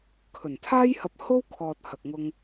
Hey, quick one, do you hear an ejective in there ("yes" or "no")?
no